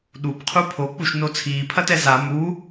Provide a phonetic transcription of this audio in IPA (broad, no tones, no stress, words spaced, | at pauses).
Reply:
ɗubqʰu pʰok͡puʃno t͡sʰiːpʰɐtɛ za mu